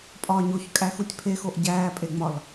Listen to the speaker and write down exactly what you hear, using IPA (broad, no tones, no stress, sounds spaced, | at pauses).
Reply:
pʼ ɒː ɲ o ç kʼ æ x u tʲ pʰ e x o ʔ ɟ æː pʼ e ŋ͡m ɒ l